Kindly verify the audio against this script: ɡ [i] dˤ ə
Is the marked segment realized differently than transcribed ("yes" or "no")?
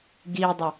no